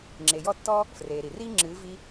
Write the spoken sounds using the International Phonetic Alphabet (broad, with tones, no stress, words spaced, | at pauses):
ŋ͡ǁe˨jɔ˦˨tːɔ˦ | freː˨ɾi˨ riː˦ ŋ͡ǁɨː˨˦ vi˧